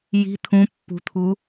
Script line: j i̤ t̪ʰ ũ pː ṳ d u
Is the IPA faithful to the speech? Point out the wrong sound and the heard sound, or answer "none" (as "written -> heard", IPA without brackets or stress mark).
d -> t̪ʰ